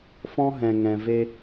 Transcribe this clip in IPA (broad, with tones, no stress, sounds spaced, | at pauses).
f ɔ̃˦ ɦ ɛ̃˨ ŋ ɛ̃˨ v e˦